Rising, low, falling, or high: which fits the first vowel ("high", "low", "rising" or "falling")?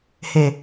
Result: low